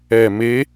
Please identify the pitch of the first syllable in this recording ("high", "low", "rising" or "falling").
low